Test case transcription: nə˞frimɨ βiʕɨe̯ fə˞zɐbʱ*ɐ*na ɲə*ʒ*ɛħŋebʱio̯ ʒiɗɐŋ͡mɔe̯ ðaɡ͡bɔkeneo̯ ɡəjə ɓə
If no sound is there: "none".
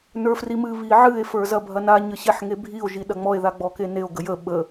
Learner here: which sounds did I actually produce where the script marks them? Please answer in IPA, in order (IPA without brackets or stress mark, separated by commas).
ɐ, ɕ